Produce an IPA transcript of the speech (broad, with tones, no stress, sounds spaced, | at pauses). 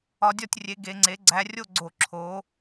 ɒ˨˦ dʲ ɒ˥˨ tʲ rʲ e˨˦ ɡ e˨˦ ŋ͡ǀ e˨˦ ɡ͡ǀ æ˨˦ rʲ o˥˨ ɡ͡ǀ o˧˩ ǁʰ o˨˦